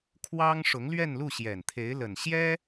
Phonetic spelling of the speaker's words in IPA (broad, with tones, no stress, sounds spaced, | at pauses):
kʰ w ɑ˥ ŋ ʂ ʊ˧˥ ŋ l ɥ ɛ˥˧ n l u˥˩ ɕ j ɛ˨˩ n t̪ʰ e˧˥ ɪ̯ l ə˨˩ n ɕ j ɛ˥